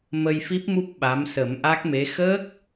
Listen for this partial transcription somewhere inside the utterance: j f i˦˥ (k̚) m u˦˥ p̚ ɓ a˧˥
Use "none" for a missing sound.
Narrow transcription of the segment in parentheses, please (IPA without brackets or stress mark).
p̚